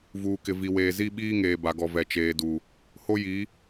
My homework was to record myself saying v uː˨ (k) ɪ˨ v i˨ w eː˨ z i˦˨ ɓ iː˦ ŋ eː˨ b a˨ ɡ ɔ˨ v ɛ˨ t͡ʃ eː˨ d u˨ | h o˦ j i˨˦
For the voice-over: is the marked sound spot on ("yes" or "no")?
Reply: yes